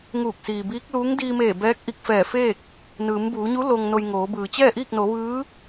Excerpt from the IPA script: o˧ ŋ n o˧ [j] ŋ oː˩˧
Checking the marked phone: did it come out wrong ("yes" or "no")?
no